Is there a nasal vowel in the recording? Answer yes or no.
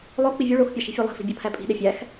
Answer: no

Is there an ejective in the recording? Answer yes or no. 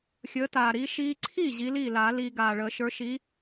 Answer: no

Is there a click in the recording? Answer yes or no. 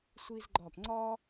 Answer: yes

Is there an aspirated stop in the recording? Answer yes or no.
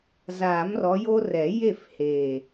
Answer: no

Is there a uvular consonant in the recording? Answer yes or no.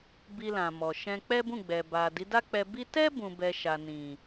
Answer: no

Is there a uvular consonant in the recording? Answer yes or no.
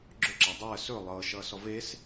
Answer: no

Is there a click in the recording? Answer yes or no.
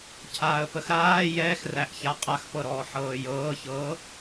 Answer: no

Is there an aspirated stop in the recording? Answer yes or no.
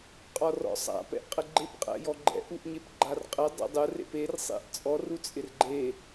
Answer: no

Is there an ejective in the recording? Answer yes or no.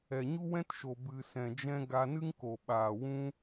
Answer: no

